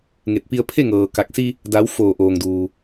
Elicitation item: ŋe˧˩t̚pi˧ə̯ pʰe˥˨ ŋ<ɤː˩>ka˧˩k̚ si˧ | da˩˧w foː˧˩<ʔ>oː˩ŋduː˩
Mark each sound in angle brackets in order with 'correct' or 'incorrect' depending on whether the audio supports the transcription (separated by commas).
correct, correct